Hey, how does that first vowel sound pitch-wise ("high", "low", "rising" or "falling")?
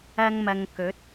high